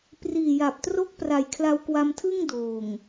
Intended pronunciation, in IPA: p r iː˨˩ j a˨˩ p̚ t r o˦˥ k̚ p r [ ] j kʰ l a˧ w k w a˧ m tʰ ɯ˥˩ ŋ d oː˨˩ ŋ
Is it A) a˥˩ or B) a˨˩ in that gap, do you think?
B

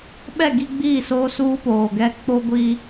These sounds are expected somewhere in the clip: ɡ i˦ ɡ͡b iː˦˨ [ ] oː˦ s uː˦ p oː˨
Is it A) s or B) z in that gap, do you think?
A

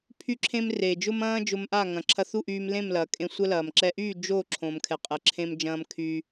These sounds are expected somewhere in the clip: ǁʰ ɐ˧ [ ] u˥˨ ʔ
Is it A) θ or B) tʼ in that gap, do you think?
A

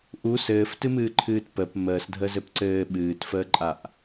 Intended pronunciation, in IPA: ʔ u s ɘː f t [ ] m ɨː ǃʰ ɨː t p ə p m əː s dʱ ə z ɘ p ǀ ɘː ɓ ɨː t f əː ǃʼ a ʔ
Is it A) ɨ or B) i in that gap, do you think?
A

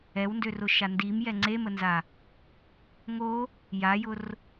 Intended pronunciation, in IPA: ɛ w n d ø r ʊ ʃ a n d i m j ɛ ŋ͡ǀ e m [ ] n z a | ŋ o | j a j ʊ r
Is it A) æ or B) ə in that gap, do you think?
B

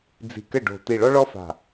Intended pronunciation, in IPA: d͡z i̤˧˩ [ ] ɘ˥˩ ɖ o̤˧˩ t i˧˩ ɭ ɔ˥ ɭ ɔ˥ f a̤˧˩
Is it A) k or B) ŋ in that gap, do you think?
A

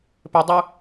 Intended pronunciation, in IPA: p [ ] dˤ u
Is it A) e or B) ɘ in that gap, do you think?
B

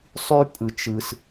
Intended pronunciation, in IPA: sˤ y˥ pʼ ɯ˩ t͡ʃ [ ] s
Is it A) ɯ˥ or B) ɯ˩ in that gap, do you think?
B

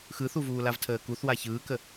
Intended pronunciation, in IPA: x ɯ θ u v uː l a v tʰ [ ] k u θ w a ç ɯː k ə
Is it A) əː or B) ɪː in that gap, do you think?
A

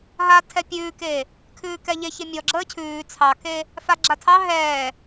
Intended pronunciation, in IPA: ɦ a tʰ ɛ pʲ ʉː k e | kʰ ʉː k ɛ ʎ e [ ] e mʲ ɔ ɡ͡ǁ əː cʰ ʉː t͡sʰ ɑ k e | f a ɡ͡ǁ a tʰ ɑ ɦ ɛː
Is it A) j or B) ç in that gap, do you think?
B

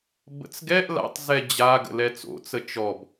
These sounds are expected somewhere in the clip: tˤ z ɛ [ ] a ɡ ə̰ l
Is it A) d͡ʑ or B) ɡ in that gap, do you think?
A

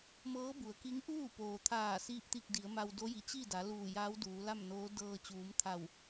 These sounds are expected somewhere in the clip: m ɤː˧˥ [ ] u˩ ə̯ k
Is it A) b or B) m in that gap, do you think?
A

